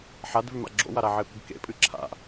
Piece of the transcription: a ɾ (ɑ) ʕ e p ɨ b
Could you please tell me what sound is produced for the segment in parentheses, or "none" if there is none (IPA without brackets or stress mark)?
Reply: a